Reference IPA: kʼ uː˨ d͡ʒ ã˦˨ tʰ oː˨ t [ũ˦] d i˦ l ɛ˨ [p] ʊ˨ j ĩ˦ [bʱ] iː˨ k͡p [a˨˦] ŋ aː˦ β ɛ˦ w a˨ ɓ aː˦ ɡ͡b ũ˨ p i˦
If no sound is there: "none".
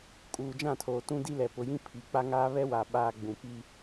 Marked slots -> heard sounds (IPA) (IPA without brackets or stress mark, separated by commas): ũ˦, p, pʰ, a˦